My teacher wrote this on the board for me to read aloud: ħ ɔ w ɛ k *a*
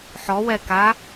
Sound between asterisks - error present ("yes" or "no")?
no